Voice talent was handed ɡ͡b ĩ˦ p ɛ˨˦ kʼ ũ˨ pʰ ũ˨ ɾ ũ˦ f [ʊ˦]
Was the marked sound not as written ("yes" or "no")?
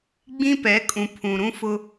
no